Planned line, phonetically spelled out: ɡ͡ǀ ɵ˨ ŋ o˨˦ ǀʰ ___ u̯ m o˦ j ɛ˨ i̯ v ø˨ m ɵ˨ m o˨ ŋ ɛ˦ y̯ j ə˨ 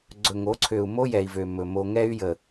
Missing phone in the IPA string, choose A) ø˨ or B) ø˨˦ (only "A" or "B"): A